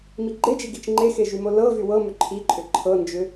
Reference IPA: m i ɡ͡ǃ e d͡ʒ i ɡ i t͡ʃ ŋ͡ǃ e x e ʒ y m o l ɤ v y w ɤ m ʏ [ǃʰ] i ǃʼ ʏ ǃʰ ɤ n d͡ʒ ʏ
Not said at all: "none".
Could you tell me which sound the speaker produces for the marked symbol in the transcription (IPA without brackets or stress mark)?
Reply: ǃʰ